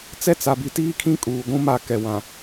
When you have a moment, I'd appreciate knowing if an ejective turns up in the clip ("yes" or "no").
yes